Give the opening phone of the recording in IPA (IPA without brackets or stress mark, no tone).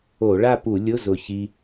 o